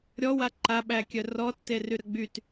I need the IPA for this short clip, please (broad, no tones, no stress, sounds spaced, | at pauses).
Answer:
ɾʲ ɔ w a ǃ a ɓ æ kʲ œ r ɔ tː e r y ɾ ə ɡ͡b y t